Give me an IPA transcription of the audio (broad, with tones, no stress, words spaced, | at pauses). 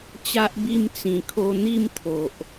t͡ɕa˦ʔbi˥˧m t͡sĩ˨˩kʰo˧n̪i˥˧mt̪ʰo˨ʔ